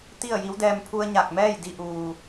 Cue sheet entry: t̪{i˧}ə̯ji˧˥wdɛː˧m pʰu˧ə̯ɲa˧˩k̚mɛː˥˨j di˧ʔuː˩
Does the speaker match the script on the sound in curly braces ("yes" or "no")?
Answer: no